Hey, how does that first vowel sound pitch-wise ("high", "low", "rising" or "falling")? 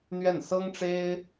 falling